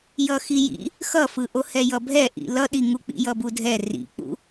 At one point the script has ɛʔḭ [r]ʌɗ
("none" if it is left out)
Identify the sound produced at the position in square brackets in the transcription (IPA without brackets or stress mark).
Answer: l